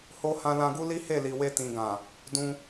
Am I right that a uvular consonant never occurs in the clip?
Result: yes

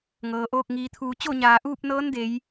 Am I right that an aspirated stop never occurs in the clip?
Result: no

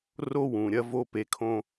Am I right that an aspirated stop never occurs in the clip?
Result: no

